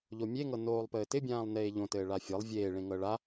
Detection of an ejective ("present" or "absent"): absent